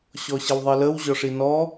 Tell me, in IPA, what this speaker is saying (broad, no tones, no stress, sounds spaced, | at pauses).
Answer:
ɕ ɔ ɕ ə w ðˤ e l ə w ʑ ɔ ʂ i n ɔ